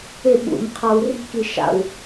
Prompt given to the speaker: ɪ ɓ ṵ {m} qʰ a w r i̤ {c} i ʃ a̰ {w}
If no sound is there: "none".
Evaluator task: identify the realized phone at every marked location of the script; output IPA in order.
m, k, w

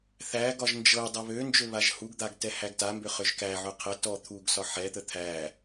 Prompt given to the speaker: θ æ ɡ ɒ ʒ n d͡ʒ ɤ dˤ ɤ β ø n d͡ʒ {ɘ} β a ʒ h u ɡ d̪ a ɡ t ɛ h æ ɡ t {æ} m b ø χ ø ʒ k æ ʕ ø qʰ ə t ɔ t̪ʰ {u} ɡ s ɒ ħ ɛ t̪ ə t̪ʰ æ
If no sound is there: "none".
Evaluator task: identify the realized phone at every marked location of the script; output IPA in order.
ø, a, u

